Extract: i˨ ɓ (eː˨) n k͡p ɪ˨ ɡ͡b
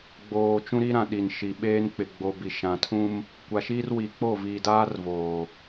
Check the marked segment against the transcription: incorrect: eː˦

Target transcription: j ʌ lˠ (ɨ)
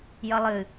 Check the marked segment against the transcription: correct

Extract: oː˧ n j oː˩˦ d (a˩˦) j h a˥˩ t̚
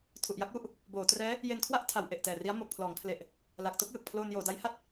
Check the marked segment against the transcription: incorrect: a˦˥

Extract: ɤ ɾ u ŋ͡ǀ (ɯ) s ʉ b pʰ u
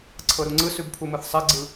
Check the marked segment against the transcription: correct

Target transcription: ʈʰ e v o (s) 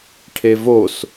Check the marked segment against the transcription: correct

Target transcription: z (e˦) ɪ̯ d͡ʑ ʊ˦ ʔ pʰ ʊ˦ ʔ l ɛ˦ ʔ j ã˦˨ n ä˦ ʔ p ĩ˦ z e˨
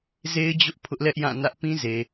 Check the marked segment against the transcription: correct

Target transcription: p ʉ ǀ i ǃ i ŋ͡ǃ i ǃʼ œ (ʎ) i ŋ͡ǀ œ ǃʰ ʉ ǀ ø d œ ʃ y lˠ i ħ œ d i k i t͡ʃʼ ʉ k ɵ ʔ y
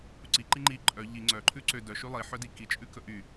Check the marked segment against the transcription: correct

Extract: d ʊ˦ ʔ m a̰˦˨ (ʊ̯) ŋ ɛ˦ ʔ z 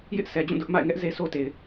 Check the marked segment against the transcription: incorrect: ɪ̯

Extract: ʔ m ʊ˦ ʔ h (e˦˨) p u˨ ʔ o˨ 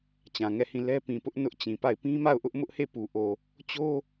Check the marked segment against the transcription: correct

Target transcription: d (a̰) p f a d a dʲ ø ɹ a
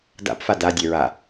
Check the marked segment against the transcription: correct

